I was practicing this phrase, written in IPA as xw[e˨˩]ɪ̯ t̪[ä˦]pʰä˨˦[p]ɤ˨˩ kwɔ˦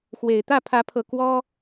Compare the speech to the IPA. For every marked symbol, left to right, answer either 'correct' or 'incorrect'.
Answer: correct, incorrect: ä˥˨, incorrect: pʰ

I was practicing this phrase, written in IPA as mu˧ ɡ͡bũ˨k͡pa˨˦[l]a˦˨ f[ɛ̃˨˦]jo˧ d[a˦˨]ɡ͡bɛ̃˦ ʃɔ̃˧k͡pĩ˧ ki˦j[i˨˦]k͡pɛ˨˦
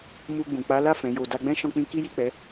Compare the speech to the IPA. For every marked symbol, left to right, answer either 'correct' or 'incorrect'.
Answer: correct, correct, incorrect: a˧, incorrect: i˦˨

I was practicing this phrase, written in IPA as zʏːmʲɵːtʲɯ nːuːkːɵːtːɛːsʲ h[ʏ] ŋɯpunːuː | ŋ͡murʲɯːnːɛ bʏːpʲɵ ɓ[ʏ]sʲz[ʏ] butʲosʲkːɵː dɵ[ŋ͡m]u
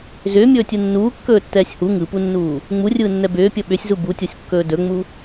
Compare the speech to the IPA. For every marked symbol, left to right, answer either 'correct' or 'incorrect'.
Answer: incorrect: u, correct, incorrect: u, correct

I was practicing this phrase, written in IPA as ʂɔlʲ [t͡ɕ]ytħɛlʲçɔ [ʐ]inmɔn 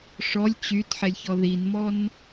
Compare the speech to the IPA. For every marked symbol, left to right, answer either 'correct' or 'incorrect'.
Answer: correct, incorrect: ð

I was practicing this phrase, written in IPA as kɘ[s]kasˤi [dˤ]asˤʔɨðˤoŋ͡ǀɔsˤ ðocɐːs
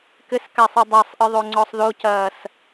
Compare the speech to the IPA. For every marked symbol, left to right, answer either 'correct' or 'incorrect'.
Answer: correct, correct

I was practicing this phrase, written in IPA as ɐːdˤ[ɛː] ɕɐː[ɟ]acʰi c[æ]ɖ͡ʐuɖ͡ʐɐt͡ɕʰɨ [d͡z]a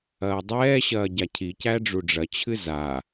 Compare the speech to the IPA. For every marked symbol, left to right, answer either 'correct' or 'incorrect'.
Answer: correct, correct, correct, incorrect: z

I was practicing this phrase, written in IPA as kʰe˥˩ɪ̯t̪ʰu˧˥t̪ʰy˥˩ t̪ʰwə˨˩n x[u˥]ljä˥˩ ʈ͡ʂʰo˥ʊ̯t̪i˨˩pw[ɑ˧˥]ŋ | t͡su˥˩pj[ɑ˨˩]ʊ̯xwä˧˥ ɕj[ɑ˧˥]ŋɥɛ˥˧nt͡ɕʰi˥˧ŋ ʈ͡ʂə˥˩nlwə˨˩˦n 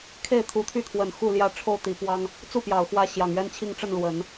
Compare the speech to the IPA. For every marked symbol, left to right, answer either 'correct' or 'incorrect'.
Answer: incorrect: u˥˧, incorrect: ɑ˥, correct, incorrect: ɑ˨˩

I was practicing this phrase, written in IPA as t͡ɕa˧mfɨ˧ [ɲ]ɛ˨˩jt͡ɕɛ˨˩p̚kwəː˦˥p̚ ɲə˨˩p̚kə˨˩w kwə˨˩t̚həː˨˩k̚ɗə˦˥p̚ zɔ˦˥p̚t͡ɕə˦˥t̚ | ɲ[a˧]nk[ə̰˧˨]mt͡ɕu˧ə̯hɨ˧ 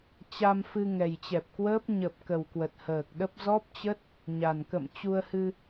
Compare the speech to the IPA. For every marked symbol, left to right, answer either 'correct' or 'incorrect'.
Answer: incorrect: ŋ, incorrect: a˨˩, correct

